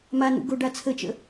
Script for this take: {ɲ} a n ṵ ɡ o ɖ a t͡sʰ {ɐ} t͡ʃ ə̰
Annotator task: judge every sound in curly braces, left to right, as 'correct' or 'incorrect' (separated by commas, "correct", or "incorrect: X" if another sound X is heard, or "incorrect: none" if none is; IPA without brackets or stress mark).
incorrect: m, incorrect: ə